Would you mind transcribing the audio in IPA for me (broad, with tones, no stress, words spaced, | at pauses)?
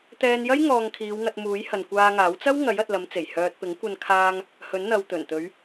t̪ɛː˧njɐ˥j ŋɔː˧ŋkʰiː˨˧wŋɐ˧t̚muː˨˥j hɐ˨nkʷaː˧ŋaː˨˥w t͡sɐ˥wŋɐ˨˥j ɐ˨t̚lɐ˨˧mt͡se˨˩j hœː˨t̚pɪ˨˥ŋkʷɐ˧nkʰaː˧ŋ | hɵ˨˥nn̪ɐ˨wt̪ɵ˨˩nt̪ɵ˨˧ɥ